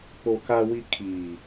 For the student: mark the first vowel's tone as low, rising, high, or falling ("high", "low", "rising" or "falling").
low